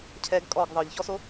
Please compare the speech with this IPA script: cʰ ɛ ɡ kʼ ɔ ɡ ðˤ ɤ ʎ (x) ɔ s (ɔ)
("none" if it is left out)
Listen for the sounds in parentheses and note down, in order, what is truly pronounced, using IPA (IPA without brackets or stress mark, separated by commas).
ç, o